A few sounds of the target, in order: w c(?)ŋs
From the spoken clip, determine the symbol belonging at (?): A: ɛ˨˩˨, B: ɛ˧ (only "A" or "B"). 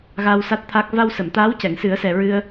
A